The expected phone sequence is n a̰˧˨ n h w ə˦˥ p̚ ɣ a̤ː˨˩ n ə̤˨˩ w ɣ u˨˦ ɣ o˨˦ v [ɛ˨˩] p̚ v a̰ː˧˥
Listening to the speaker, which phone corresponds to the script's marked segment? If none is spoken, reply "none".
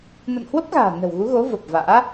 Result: ə˨˩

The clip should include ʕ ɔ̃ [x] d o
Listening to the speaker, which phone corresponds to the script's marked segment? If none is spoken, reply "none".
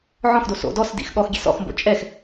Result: x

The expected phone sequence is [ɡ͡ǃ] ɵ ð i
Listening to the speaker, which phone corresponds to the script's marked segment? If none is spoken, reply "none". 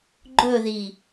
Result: ɡ͡ǃ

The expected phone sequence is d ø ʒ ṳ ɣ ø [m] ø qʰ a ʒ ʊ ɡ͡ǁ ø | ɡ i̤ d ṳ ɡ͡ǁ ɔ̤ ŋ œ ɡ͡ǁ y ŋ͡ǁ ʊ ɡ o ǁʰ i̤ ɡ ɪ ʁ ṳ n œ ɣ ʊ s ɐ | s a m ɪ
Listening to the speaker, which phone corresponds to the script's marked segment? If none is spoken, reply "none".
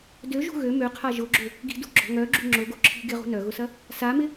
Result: m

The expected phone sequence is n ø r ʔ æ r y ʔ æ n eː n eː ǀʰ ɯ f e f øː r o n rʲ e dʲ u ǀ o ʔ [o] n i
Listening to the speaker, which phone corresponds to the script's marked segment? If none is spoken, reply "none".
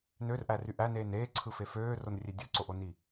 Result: o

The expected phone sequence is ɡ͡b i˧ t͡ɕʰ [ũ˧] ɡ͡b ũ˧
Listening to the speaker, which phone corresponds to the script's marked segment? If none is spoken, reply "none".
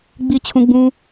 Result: ũ˧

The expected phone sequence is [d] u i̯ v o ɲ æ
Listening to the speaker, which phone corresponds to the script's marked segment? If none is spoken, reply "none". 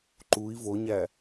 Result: ǃ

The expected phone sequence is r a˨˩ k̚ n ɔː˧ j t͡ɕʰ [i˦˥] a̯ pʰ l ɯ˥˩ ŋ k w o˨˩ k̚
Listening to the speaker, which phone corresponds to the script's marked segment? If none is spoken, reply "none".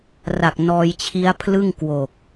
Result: i˦˥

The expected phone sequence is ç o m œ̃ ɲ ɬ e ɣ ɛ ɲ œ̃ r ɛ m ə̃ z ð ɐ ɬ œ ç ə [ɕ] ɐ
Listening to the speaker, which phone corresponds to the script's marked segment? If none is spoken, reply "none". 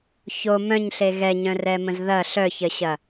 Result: ɕ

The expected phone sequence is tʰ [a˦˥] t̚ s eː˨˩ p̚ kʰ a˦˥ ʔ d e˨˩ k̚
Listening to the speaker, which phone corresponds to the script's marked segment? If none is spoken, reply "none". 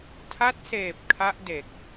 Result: a˦˥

